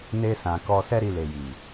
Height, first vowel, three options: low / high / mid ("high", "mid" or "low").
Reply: mid